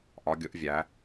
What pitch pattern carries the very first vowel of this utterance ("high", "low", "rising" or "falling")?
rising